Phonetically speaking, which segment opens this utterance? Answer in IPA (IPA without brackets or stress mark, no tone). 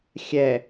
xʲ